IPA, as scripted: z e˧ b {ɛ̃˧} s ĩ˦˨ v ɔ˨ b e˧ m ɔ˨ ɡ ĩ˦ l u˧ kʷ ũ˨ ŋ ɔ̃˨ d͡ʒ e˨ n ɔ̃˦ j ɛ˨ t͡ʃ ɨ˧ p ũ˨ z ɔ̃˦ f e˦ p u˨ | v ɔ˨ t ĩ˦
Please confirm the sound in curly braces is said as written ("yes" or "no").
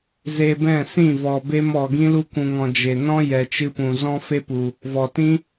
no